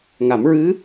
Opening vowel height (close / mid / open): open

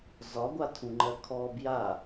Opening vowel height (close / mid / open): open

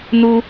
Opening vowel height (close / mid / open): close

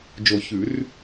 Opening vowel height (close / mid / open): mid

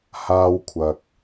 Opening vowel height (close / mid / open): open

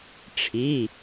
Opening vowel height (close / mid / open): close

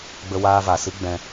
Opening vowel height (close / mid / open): mid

